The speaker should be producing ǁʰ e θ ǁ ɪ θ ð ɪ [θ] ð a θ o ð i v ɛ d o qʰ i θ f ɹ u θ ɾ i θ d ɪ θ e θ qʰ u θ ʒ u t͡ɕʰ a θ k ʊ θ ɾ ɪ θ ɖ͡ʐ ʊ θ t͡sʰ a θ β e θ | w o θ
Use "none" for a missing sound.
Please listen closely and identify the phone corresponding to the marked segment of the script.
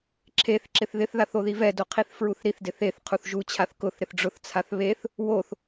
θ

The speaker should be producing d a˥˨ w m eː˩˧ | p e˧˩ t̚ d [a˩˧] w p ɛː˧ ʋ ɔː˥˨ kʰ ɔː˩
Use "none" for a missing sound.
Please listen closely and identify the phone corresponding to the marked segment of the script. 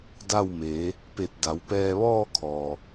a˩˧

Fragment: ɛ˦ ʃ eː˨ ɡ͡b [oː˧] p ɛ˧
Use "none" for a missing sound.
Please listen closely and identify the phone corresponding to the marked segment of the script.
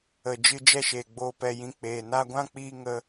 oː˧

